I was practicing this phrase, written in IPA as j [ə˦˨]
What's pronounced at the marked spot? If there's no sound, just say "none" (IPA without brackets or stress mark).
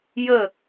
ə˦˨